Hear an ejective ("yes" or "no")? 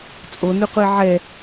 yes